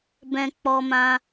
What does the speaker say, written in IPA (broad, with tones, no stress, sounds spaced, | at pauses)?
b ɛ̃˧ k͡p ɔ˧ m ã˧